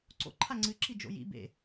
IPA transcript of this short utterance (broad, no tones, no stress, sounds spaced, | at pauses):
ǀ o̰ ǃʰ a ŋ͡ǀ ɨ ǁ i d͡ʒ o̰ j ḭ b ḛ